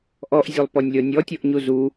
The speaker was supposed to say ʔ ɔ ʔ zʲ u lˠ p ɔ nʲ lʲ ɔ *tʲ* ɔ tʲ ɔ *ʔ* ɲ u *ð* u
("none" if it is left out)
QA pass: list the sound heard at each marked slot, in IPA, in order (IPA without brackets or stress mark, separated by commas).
nʲ, ʔ, z